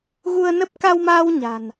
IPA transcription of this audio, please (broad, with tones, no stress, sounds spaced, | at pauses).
ɣ u˧ ə̯ n ə˦˥ p̚ k a˧ w m aː˧ w ɲ a̤˨˩ n